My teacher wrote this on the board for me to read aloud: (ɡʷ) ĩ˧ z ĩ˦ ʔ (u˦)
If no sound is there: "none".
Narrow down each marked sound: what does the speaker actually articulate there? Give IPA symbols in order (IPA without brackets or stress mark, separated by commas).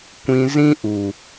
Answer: kʷ, u˨